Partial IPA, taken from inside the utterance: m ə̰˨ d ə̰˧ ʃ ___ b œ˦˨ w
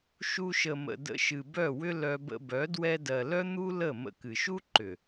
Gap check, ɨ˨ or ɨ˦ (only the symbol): ɨ˨